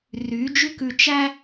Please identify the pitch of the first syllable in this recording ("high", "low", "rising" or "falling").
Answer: rising